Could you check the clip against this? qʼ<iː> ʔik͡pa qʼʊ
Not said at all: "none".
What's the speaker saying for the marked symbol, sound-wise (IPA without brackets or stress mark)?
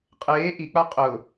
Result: eː